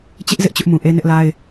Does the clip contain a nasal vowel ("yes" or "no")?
yes